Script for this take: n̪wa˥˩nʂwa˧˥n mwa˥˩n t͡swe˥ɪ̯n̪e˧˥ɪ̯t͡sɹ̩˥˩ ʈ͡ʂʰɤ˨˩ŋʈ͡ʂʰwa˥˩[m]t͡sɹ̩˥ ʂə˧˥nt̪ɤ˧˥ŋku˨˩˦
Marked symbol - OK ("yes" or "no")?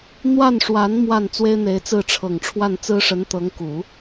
no